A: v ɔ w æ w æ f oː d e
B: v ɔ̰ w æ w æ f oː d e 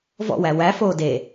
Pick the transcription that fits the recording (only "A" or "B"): B